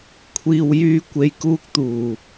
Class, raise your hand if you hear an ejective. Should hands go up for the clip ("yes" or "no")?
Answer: no